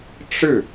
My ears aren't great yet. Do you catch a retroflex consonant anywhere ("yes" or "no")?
yes